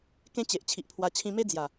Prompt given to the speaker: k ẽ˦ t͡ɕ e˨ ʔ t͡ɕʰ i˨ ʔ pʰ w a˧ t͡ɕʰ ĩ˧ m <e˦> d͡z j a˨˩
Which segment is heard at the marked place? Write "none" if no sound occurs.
e˦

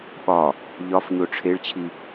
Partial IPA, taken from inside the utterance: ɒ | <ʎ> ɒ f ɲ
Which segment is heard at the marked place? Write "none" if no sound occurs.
ʎ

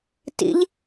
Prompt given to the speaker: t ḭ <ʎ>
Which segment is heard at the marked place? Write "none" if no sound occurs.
ʎ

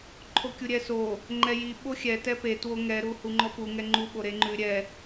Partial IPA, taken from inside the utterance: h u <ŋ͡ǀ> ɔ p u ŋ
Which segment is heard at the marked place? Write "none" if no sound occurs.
ŋ͡ǃ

